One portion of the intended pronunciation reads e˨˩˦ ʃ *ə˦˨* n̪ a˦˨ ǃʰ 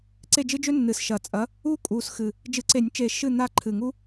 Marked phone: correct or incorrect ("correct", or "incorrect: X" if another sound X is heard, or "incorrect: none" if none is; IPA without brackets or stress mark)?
incorrect: ɨ˦˨